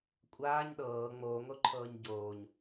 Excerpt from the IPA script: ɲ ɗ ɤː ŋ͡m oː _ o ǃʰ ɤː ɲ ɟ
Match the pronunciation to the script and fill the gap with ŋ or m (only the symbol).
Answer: ŋ